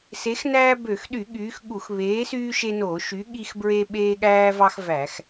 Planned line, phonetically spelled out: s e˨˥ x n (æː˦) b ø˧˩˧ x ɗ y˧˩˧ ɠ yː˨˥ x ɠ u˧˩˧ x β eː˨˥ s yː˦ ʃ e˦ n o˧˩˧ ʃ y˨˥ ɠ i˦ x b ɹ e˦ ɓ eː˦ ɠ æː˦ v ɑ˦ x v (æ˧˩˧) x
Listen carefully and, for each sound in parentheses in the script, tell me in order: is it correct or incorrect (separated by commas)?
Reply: correct, correct